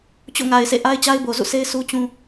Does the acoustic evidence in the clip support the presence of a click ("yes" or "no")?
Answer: no